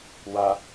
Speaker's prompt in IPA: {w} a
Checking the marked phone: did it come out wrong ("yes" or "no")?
no